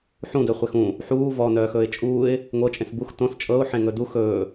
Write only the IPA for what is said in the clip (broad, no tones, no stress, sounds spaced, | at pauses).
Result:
ħ ũ d œ χʷ e x ũ | ħ uː v ɔ n œː x ɵː ɪ̯ t͡ʃʼ uː ɪ̯ | ŋʷ ɤ t͡ʃʼ ẽ s b u x t õ s t͡ʃʼ ɤ ʊ̯ ħ ẽ ŋ ɵ d u x ɵː